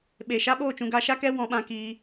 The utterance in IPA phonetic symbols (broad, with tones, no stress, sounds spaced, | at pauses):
ɓ e˨ ʃ a˦ ɓ oː˦˨ t͡ʃ ũ˧ ɡ a˧ ʃ a˦ k ɛ˦ w ɔ̃˧ ɓ ã˧ k iː˧